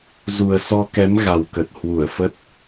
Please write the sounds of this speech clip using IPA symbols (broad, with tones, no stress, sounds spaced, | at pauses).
z u˨˩ ə̯ s ɔ˧ k ɛ˨˦ m ɣ a˨˩ w k ə˨˩ t̚ h w u˧˩ ə̯ f ə˦˥ t̚